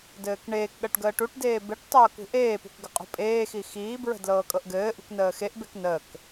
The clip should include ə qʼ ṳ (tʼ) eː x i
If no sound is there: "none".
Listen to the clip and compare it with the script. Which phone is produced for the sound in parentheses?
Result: pʼ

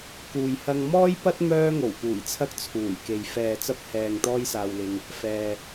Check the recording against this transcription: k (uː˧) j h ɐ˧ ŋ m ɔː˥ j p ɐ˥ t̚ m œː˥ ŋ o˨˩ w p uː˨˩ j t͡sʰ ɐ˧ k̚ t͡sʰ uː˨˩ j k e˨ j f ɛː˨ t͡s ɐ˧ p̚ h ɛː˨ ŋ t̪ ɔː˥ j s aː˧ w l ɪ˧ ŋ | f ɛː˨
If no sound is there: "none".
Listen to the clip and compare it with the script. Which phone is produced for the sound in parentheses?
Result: uː˨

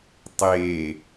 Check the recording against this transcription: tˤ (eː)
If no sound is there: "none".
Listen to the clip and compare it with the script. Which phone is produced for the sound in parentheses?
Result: eː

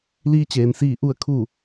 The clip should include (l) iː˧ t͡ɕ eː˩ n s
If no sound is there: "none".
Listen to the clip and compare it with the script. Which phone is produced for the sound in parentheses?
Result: l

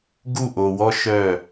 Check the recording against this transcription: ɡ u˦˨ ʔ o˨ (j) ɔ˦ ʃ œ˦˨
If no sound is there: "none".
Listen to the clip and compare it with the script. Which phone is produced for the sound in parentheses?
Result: w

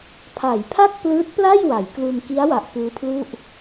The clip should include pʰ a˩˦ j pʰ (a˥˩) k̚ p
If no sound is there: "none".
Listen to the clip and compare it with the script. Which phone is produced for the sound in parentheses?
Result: a˥˩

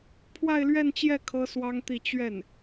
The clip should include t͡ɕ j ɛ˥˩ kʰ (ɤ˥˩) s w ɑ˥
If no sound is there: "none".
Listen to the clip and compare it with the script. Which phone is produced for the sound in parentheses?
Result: ɤ˥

